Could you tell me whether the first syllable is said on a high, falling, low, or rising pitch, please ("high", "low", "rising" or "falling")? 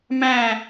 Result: falling